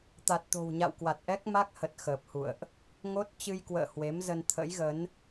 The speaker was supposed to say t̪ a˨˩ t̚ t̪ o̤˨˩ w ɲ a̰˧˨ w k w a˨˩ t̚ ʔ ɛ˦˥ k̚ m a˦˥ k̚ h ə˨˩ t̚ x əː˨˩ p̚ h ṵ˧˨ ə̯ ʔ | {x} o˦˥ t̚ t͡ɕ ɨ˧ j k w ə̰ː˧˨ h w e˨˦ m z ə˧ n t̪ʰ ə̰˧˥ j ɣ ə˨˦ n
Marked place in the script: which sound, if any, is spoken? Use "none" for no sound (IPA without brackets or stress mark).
ŋ